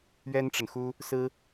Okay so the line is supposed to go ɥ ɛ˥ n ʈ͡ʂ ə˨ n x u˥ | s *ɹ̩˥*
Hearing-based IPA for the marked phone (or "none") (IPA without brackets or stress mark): ɹ̩˥